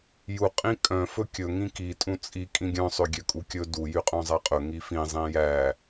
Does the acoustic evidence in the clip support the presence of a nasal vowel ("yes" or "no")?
yes